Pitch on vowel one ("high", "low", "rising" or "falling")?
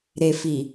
low